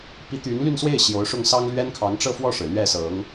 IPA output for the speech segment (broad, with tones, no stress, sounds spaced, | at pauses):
p i˧˥ t̪ y˧˥ n l y˥˧ n s w e˥˩ ɪ̯ ɕ j o˧˥ ʊ̯ ʂ ʊ˥˩ ŋ s ɑ˥ ŋ l ɥ ɛ˥ n kʰ ɑ˧˥ ŋ ʈ͡ʂ ɤ˥˧ f w ɔ˥˩ ʂ ɻ̩˩ l ɥ ɛ˥˩ s ɤ˧˥ ŋ